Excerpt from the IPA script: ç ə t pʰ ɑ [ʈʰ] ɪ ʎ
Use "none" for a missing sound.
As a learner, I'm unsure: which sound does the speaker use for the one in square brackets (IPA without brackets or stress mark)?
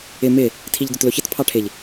ʈʰ